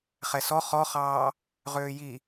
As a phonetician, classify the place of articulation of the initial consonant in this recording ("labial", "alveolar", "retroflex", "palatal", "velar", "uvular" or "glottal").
uvular